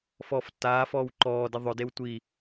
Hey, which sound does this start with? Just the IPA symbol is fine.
f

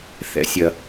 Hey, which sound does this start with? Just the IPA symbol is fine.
θ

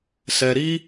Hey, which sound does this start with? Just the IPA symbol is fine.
s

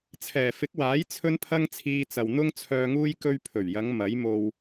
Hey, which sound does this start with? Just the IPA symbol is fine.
t͡sʰ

